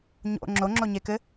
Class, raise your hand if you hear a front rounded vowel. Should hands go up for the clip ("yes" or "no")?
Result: no